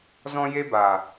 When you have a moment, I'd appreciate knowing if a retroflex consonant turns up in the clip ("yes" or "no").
no